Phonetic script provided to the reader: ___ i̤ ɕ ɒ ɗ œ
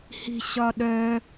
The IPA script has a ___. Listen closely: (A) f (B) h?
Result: B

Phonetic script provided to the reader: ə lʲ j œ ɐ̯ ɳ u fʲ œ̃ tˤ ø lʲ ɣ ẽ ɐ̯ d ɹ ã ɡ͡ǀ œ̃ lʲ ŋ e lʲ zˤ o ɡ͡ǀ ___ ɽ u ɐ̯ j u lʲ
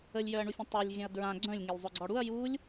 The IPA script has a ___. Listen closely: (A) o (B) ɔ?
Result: B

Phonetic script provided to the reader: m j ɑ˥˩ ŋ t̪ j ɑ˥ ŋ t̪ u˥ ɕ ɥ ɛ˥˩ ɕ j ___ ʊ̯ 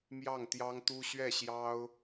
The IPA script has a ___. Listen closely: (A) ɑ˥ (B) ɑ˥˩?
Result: A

